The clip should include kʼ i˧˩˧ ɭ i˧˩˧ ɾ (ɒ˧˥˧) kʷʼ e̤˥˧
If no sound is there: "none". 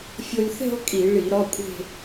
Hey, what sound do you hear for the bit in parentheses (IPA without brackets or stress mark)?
ɒ˧˥˧